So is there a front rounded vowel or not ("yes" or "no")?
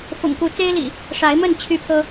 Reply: yes